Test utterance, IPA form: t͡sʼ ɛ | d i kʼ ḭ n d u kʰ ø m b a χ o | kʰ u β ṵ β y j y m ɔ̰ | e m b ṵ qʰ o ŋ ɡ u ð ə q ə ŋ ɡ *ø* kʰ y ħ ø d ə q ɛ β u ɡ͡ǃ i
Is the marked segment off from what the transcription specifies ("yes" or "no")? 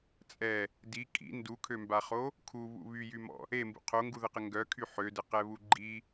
yes